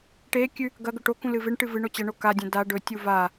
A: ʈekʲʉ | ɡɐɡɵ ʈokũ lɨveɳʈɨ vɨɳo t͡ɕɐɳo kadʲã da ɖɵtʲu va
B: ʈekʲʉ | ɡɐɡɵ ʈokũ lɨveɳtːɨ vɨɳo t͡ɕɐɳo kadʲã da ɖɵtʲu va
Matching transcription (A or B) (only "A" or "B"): A